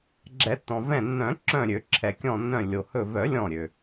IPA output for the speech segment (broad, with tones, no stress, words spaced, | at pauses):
ɡ͡ǁɛ˨˩˦tːɔ̃˩vɛ̃˧˩ nːœ̃˨˩˦ǁœ̃˧˩ɾʲø˨˩˦ ǁʰɛ˩kʲɔ̃˧˩nːœ̃˧˩ lʲo˩hɵ˧˩ vœ˨˩˦lʲɔ̃˧˩ ɾʲø˩